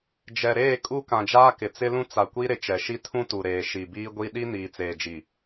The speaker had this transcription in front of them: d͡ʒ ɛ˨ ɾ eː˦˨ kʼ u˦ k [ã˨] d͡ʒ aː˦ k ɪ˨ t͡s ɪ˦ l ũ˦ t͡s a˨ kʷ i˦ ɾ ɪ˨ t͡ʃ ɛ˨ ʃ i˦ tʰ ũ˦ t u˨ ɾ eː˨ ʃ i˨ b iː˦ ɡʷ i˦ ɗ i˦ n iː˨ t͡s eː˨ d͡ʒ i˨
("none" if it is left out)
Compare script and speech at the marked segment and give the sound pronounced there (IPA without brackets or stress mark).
ã˨